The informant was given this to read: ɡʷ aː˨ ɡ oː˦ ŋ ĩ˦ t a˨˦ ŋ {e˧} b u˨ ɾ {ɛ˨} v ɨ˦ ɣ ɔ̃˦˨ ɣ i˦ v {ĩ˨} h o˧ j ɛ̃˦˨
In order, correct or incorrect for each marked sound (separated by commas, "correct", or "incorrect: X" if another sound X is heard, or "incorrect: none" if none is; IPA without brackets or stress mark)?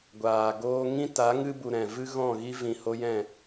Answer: incorrect: ɨ˧, incorrect: ɛ̃˨, correct